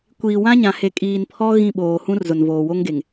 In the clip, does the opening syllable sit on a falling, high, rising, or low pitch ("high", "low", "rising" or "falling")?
low